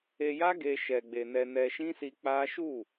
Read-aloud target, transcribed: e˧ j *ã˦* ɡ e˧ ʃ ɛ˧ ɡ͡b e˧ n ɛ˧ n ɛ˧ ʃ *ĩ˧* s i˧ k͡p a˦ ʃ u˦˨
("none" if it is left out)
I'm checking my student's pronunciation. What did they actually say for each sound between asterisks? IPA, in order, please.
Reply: a˦, ĩ˦

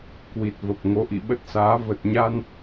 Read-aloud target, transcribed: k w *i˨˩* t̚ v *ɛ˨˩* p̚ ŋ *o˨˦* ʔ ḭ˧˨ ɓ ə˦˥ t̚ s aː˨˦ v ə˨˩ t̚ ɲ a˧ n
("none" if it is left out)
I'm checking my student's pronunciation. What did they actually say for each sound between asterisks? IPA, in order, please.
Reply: i˨˩, ə˨˩, o˨˦

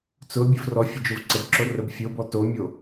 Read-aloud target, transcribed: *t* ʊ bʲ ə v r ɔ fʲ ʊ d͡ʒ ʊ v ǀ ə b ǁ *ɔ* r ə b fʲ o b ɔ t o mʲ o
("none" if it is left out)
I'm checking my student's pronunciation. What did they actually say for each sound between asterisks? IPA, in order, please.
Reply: t͡s, o

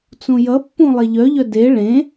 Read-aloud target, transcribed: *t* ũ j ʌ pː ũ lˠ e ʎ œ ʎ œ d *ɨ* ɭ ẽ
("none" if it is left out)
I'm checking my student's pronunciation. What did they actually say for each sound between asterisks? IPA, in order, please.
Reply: t͡s, e

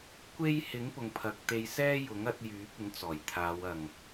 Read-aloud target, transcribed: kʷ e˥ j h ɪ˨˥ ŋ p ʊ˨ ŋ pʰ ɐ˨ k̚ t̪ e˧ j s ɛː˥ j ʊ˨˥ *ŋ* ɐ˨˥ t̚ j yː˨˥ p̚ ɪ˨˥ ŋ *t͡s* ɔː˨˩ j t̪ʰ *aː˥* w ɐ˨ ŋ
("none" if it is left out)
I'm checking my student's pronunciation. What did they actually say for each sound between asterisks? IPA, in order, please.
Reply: ŋ, t͡s, aː˨˧

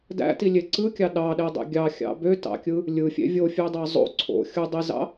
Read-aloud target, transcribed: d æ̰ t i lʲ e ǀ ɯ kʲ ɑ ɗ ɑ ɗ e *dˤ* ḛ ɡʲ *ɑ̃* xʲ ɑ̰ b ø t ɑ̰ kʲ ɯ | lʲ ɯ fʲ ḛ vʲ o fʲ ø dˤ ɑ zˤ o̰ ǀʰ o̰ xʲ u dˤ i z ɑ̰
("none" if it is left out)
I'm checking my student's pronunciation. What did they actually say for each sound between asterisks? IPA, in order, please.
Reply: dˤ, ɑ

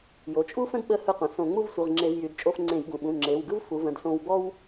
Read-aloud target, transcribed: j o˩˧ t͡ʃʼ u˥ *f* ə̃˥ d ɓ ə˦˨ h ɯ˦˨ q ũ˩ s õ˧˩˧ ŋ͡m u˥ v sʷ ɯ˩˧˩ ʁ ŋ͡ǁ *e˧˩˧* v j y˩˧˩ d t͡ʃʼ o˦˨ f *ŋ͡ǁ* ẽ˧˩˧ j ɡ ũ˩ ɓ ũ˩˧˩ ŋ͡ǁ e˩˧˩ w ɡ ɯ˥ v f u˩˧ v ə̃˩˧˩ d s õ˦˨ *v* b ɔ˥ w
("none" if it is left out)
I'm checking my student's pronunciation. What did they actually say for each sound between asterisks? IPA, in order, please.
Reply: f, e˧˩˧, ŋ͡ǀ, w

